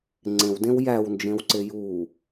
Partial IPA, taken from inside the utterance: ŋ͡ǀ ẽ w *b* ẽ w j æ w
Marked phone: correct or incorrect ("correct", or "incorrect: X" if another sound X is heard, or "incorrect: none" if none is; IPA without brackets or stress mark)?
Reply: incorrect: d